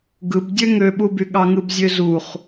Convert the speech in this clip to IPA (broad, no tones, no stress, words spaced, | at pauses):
ɡɯb dʲøŋøɓuby ɠɑŋɯbzʲøzuχ